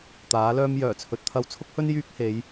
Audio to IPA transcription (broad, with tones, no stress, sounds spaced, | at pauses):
t̪ aː˨˥ l œː˥ m j œː˨˩ t͡sʰ ɵ˨ t̚ t̪ʰ ɐ˧ w t͡sʰ ʊ˥ k̚ h ɵ˥ n j yː˥ k̚ h e˨˧ j